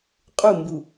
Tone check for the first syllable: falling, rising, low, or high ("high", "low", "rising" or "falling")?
falling